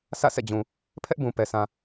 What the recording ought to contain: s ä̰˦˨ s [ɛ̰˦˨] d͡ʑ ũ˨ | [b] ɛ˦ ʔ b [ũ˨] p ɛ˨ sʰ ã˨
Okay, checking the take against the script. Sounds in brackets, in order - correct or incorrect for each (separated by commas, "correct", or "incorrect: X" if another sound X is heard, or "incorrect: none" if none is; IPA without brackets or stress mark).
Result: correct, incorrect: pʰ, correct